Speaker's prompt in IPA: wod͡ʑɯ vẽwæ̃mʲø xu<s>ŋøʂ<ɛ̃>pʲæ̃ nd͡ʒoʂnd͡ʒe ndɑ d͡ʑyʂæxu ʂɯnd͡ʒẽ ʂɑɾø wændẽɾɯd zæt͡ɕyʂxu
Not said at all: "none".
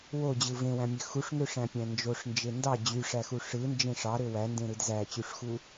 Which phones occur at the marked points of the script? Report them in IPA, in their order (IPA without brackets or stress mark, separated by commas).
ʂ, æ̃